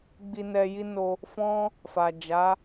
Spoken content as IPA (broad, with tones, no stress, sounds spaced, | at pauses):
ɡ͡b i˧ n ɛ˧ j i˦ n o˧ | f ɔ̃˦ | f a˨ d͡ʒ a˨˦